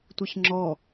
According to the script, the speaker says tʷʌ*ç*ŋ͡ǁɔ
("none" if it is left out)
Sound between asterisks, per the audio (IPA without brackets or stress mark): ç